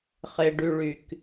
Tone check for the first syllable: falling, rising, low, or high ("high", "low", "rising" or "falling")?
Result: low